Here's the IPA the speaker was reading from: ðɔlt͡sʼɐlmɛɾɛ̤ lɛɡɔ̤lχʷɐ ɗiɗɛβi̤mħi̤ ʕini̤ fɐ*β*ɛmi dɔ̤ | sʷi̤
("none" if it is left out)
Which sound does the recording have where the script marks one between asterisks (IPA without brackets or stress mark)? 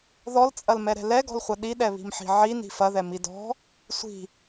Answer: ð